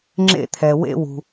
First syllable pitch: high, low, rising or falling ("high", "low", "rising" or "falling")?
high